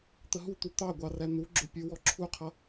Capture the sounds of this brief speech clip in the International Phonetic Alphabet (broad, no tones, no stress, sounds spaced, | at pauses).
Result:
t̪ ə ɦ u t̪ u t̪ ɑ ɡʷ ɑ r æ n̪ u ɡ͡ǁ ʊ pʲ ə˞ w ɔ ǁʰ u qʰ ʌ